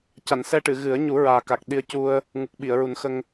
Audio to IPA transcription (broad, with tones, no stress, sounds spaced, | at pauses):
c a˨˩˨ n s ɛ˧ ʈ ɨ˨˩˨ ɣ ɨ˨˩˦ ə̯ ɲ u˨˩˦ ɹ aː˨˩ k a˨˩ k̚ ɗ i˧ ə̯ c u˧ ə̯ | ŋ u˨˩ k̚ ɓ i˨˩˨ ə̯ ɹ u˨˩˦ n x ə˧ ŋ